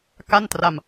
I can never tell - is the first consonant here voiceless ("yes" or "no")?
yes